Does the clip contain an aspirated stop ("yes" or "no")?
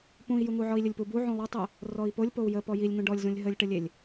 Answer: no